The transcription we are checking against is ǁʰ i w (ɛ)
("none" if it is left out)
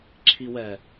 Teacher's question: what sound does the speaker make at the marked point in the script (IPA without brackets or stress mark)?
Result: ɛ